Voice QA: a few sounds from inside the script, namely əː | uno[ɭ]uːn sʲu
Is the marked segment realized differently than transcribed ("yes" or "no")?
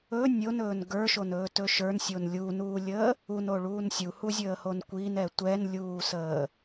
no